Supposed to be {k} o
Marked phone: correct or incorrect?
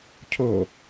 incorrect